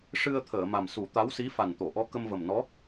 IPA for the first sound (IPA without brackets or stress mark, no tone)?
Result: ʂ